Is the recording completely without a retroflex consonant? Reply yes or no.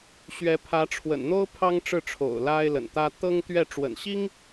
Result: no